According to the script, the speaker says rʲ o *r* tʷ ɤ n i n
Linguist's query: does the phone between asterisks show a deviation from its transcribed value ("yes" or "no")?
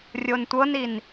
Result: yes